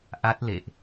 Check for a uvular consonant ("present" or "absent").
absent